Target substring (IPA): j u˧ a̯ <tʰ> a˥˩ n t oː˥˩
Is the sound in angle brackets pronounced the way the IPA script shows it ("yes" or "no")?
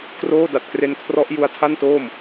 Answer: yes